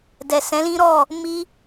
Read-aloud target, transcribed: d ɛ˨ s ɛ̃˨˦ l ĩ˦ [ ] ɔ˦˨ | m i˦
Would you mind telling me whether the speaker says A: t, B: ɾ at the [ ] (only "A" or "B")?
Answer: B